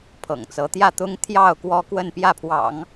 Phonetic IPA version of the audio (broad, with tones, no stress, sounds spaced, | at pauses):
pʰ ɤ̰˨˩ ŋ t͡s ɤ˧˥ t̪ j ä˥˩ t̪ ʊ˥ ŋ t̪ʰ j ɑ˥˩ ʊ̯ k w ɔ˥ k w ə˥˧ n p j ä˥˩ pʰ w ɑ̰˨˩˦ ŋ